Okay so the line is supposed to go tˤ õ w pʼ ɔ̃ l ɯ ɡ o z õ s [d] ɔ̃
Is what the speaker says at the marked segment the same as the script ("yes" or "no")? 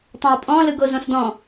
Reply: yes